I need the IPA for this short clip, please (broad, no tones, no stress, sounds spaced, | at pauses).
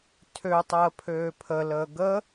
tʰ ø tˤ əː pʰ øː pʰ ə l əː ɡ ə